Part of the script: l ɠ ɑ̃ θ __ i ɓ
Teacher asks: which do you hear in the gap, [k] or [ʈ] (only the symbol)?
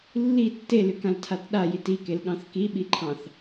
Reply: k